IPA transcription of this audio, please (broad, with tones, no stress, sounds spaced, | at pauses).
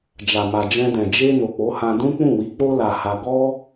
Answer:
d͡ʒ a˨ m a˨ d͡ʒ ɛ̃˧ d ɛ̃˨ d͡ʒ e˧ n o˨ k͡p o˨˦ h ã˧ d ũ˦ k͡p ũ˦˨ w i˨˦ k͡p o˦ l a˧ h a˧ ɡ ɔ˦